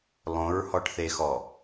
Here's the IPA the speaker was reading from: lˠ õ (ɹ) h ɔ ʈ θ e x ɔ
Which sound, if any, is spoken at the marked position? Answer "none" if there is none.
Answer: ɹ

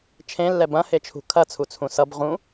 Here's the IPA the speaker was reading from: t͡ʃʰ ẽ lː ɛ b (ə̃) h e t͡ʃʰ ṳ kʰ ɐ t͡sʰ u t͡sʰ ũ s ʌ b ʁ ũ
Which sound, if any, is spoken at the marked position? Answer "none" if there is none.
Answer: ɐ̃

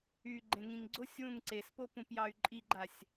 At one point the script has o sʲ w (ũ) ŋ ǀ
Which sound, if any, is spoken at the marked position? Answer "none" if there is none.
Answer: ũ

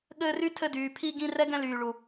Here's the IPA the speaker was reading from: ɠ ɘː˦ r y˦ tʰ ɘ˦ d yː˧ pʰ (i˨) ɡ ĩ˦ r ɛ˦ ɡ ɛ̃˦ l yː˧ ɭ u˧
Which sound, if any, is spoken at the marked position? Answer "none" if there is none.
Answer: i˧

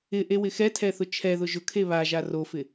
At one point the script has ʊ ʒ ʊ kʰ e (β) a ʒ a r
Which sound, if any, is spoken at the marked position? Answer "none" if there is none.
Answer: β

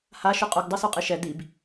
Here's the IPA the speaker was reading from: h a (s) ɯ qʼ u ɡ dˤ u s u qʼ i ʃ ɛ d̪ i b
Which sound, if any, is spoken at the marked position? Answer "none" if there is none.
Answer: ʃ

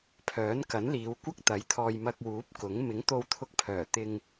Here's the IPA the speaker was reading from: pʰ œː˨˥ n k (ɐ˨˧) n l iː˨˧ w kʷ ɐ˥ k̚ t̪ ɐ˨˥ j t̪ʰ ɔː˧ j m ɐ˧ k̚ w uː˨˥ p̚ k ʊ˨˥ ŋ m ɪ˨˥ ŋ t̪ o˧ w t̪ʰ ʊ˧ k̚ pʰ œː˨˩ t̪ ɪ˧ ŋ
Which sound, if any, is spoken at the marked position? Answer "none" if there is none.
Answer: ɐ˨˥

